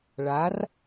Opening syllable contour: rising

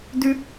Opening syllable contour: high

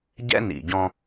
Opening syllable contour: high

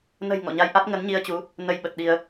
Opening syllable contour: low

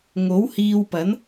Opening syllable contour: rising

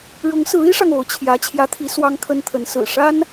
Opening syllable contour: rising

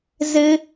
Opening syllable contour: high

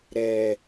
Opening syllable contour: low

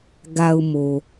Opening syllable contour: low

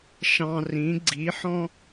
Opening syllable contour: low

